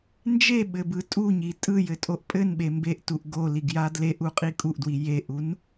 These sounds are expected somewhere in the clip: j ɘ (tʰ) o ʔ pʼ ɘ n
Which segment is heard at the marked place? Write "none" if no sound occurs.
tʼ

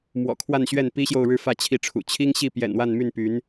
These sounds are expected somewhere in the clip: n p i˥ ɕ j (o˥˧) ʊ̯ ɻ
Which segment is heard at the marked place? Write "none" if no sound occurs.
o˥˧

